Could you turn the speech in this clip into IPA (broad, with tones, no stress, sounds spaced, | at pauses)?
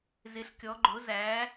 z ɪ˨˦ ɬ kʲ ɔ˨˦ ɡ͡ǃ ʊ˨˦ z æ˨˦